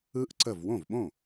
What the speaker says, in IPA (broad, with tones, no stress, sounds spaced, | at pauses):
ɯ˧˥ ʔ ǀ ə˧˩ v w õ˥˩ v ɓ õ˥˩